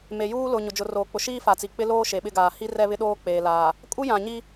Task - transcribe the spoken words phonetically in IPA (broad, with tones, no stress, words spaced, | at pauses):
me˨juː˦lʊ˨ ɲʊ˨d͡ʒʊ˨roː˨ k͡pʊ˨ʃiː˦ fa˨t͡si˨ k͡pɪ˦loː˦ ʃe˨ɓɪ˦ɡaː˨ hi˦rɛ˦βɪ˦ɗoː˦ k͡peː˨laː˨ | kʼu˦ jã˨ɲi˦